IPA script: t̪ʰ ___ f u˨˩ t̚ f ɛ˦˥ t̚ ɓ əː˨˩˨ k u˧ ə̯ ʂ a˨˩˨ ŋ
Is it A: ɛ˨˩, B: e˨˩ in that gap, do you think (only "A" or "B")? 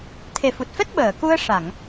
B